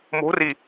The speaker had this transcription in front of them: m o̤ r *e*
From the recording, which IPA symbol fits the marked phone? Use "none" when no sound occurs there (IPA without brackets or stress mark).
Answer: i